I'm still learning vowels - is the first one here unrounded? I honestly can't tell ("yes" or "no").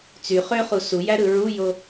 no